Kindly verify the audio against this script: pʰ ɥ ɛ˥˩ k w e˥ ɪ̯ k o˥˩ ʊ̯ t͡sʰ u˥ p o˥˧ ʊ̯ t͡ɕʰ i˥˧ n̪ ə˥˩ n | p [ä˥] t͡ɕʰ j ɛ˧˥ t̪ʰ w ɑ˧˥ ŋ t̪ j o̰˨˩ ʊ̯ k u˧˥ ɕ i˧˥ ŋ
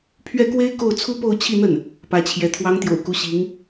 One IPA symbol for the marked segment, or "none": ä˧˥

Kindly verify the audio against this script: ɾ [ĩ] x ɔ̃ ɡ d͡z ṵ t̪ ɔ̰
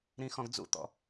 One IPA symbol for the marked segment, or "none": ĩ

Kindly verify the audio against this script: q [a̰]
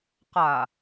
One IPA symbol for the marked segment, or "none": a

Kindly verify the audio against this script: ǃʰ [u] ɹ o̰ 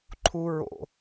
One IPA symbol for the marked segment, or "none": u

